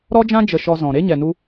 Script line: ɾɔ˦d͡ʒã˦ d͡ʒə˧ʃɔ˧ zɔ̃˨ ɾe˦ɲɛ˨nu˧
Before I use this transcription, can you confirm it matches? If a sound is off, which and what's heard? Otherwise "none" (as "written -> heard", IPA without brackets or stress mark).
none